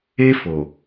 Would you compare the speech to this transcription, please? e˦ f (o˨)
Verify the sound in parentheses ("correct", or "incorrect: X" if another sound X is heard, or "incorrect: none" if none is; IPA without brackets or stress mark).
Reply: correct